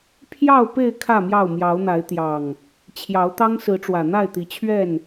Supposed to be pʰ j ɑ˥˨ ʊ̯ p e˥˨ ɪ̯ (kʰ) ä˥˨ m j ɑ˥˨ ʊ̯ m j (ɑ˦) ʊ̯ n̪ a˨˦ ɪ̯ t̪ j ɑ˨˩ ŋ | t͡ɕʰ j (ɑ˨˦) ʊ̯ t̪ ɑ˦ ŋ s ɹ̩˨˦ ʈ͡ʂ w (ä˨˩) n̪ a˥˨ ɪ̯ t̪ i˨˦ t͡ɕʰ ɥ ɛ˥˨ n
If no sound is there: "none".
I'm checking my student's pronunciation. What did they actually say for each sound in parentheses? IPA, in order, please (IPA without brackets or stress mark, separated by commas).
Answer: kʰ, ɑ˨˦, ɑ˨˦, ä˨˩